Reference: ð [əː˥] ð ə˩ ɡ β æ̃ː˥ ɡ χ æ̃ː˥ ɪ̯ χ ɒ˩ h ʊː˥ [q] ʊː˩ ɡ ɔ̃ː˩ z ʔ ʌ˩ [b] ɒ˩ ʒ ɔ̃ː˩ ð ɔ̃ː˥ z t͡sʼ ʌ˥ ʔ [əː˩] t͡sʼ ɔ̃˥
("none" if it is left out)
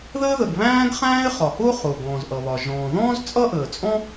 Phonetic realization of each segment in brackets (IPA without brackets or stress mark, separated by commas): əː˥, χ, β, əː˩